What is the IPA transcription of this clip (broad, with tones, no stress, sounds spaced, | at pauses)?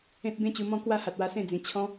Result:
ẽ˦ t̚ b ẽ˦ t͡ɕ u˧ m ɔ̃˦ k w a˦ h a˨ t̚ w a˧ s ẽ˥˧ d͡z ĩ˨˩ t͡ɕʰ ɔ̃˦